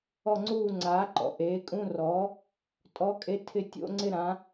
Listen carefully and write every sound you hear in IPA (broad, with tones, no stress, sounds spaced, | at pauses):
ɔ˦˨ ŋ͡ǀ uː˦˨ ŋ͡ǀ aː˩˥ ǃ ɔ̰˩ ʔ eː˩˥ kʼ ũ˧˥˧ r ɔː˩˥ | tʼ ɔ˧˥˧ kʼ e˧˥˧ tʰ ɪ˦˨ tʲ o̰˧˥˧ ŋ͡ǀ ɪ˦˨ ɾ ã˩˥